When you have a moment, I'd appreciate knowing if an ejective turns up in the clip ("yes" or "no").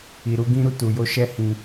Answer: no